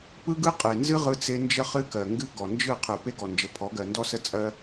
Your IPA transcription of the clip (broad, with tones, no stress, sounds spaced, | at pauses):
p ɯ˦ ɡ ɯ˦ qʼ e˨ n z ɨ˦ ʁ ɯ˦ t͡s e˦ n d͡ʒ ə˦ χ ɨ˦ k ɜ˨ ŋ ɡ ɨ˦ ɡ ɔ˨ n d͡ʒ ɯ˦˨ qʰ ɯ˨ p e˦ ɡ ɔ˨ n d͡ʒ ə˨ pʰ ɔ˨˦ ɡ ɜ˨ n d ɔ˦ s ə˦ t͡sʼ ɜ˦